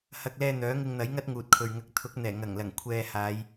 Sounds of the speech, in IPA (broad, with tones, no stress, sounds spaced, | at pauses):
h ɐ˧ k̚ l ɛː˧ n̪ œː˨˥ ŋ ɪ˧ ŋ n̪ ɐ˨˥ j ŋ ɐ˥ t̚ ŋ uː˨ t̚ kʰ ɵ˨ ɥ ŋ ɐ˧ k̚ t̪ʰ ʊ˨˥ k̚ n̪ ɛː˨˩ ŋ ɐ˨˩ ŋ l ɐ˨˩ ŋ kʷʰ ɛː˨ h aː˨˧ j